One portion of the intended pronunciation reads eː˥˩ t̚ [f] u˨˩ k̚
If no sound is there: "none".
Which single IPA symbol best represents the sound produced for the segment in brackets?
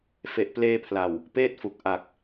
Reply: f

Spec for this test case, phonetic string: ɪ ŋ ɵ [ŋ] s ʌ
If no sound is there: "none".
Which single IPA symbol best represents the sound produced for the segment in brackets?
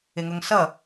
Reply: ŋ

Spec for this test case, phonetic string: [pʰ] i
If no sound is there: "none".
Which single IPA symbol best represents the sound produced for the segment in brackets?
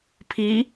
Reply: pʰ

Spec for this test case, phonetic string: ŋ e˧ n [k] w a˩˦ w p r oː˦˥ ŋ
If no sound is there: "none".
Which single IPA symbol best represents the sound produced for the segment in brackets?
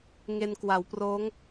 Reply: k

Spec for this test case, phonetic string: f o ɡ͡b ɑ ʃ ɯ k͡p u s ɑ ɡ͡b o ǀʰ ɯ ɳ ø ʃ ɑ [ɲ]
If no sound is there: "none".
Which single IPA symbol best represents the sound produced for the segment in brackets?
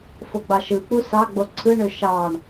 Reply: ɳ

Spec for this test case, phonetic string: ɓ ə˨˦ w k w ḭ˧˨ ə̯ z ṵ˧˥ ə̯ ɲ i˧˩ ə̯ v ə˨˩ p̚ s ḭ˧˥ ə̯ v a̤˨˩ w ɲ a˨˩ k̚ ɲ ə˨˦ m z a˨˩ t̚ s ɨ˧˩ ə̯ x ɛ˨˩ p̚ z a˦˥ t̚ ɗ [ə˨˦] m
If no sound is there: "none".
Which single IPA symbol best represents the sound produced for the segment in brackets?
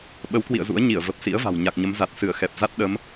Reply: ə˨˦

